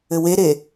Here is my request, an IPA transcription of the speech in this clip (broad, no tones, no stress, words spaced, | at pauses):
ɘweɾe